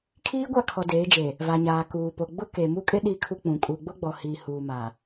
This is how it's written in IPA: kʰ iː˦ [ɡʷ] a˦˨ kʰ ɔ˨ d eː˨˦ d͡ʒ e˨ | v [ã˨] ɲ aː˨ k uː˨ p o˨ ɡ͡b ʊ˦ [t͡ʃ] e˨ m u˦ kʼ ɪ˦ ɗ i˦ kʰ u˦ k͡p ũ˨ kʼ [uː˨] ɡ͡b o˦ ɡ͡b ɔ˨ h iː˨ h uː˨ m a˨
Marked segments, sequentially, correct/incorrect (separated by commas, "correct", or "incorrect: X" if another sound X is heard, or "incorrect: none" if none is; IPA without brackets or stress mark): correct, incorrect: a˨, incorrect: k, incorrect: u˨